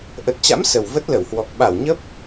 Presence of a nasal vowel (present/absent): absent